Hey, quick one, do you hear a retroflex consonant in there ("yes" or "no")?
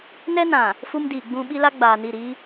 no